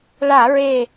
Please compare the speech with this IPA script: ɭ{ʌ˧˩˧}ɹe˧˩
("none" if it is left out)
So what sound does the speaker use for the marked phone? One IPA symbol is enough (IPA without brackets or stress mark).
a˧˩˧